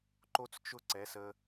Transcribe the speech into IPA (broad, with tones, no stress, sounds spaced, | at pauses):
ǃ o˦ t͡s t͡ʃ ʊ˦ ǀ ɛ˨˦ s ə˧